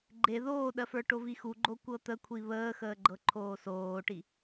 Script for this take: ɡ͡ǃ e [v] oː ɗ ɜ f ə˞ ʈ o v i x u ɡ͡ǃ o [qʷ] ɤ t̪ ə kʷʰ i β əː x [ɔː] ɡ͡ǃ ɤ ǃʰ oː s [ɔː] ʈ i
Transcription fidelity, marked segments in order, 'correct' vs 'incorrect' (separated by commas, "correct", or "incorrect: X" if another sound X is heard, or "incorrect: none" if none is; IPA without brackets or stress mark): incorrect: ð, incorrect: kʷ, incorrect: əː, incorrect: oː